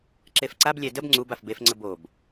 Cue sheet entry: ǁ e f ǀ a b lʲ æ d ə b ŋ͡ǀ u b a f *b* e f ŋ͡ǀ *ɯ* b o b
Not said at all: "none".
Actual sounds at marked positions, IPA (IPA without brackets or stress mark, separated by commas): b, ə